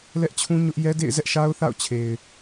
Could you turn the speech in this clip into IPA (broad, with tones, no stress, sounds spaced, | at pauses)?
l ɛ˦ ʔ t͡ɕʰ ũ˦ ɲ ʊ˦ ʔ j ɛ˦ d ḛ˦˨ ɪ̯ z ɛ˦ ʔ ʃ a˦ ʊ̯ θ a̰˦˨ ʊ̯ t͡ɕʰ e˨ ɪ̯